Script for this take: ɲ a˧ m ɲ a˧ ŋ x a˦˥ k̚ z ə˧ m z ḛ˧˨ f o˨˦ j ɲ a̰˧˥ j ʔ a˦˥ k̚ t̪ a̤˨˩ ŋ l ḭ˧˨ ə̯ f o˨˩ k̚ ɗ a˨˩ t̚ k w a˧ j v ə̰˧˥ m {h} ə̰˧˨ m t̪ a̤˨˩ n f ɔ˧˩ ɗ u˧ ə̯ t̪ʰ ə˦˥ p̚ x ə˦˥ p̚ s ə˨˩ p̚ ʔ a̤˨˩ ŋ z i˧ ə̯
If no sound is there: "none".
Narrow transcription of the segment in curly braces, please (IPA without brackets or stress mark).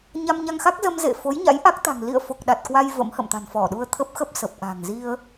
h